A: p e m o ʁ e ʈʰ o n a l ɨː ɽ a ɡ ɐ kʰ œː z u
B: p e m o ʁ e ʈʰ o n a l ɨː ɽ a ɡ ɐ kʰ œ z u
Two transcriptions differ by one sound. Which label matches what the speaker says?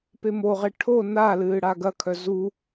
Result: B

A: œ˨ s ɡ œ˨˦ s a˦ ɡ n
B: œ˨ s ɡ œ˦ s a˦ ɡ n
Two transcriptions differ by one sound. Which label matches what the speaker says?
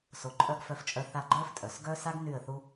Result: B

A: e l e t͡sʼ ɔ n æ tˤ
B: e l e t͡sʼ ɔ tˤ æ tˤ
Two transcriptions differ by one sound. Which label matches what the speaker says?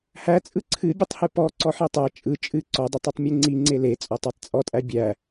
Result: B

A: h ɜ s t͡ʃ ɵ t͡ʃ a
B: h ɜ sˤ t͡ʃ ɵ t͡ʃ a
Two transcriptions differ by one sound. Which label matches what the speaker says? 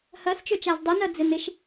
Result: A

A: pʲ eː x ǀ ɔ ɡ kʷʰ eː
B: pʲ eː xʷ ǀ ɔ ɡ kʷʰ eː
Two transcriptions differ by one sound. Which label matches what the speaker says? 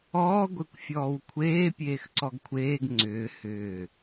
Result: A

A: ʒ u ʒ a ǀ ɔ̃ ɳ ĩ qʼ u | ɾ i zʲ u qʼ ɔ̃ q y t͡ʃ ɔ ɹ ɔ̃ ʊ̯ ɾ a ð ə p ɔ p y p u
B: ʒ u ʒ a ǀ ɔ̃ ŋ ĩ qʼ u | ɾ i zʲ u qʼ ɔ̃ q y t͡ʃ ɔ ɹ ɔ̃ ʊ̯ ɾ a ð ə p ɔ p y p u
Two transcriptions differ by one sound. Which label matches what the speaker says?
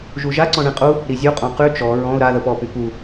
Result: A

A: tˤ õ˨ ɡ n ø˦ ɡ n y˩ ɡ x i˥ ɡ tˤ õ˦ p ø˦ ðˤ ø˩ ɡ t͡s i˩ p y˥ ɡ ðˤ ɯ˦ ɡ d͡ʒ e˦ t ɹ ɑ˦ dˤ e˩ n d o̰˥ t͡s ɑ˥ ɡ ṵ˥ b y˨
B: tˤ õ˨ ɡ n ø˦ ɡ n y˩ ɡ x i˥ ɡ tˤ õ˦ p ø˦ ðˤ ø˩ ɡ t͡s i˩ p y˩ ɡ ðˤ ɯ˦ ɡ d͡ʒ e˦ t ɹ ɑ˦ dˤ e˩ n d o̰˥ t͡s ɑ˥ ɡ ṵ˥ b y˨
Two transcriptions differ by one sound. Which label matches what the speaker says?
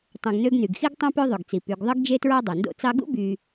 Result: B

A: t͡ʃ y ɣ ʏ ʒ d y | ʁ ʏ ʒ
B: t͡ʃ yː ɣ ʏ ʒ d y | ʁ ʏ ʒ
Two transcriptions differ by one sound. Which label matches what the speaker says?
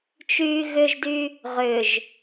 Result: B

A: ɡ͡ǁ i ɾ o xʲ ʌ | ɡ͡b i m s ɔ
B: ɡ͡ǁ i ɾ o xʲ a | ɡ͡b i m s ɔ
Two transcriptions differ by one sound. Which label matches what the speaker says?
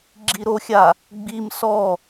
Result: B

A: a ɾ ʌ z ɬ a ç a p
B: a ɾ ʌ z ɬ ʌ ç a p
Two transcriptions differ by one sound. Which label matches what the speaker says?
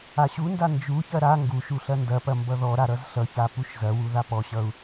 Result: B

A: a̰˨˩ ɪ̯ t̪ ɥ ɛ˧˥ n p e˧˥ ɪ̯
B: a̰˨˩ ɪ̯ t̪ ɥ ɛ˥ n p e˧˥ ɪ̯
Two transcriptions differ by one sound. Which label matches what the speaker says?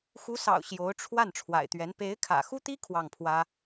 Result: A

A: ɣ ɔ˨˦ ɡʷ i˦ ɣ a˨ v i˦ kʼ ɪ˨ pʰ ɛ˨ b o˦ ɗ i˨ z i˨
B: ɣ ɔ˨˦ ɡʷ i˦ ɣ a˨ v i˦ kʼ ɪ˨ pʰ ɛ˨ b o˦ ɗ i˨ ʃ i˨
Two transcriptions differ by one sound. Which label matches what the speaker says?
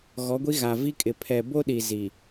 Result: A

